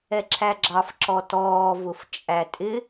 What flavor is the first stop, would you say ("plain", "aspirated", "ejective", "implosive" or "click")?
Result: click